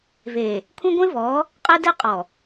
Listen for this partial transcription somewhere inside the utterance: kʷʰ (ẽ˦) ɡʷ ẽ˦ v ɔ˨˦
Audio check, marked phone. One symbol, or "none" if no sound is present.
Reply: ẽ˦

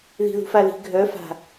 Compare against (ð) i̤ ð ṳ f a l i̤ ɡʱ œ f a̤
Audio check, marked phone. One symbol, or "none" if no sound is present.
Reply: ð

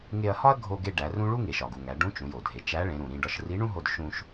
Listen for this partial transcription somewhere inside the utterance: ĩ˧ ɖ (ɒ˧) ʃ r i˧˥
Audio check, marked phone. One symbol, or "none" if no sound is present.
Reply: ɒ˧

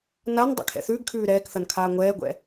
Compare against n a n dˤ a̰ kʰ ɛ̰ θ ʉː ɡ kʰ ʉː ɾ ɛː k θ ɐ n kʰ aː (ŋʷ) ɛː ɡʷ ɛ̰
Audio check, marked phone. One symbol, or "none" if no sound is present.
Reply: ŋʷ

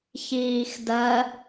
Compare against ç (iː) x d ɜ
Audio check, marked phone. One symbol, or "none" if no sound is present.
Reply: iː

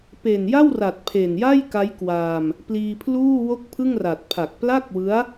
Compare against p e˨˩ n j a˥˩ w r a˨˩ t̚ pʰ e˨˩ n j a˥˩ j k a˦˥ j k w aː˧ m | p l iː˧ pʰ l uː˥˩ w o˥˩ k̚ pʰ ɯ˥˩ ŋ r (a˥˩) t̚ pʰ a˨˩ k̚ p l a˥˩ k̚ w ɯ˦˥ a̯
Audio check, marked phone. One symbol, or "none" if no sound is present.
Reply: a˨˩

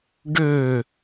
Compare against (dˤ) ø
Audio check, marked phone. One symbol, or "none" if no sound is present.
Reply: ɖ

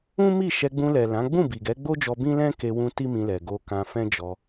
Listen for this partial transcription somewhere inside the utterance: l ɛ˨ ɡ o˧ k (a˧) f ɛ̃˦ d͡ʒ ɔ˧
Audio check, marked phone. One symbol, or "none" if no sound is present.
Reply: ã˧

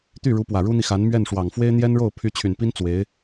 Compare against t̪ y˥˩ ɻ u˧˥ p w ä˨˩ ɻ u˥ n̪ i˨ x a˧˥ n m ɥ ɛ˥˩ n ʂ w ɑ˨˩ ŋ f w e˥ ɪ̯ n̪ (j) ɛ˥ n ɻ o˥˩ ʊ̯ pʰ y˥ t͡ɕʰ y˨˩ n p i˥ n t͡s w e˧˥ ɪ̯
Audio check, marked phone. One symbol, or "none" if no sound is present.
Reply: j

